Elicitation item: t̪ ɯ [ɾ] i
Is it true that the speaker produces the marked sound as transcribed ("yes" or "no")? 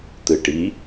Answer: no